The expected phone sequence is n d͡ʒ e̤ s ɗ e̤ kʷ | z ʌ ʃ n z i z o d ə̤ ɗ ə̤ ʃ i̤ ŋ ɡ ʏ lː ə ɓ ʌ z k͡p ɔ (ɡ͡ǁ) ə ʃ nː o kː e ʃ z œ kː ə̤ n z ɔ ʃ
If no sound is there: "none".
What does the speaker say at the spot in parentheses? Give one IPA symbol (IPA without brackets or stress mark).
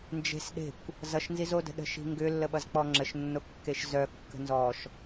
ŋ͡ǁ